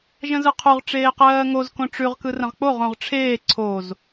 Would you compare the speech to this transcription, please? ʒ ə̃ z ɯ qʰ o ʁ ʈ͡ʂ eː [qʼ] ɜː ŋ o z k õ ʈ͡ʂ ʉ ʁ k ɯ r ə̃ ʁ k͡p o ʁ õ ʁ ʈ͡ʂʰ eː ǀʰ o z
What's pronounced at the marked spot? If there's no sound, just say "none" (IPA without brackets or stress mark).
q